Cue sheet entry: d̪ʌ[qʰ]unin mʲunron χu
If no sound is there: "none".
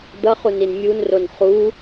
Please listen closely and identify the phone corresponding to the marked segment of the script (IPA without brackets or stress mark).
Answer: χ